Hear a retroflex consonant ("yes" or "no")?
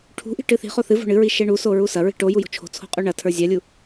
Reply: yes